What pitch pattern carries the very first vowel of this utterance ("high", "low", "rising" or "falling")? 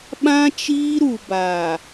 high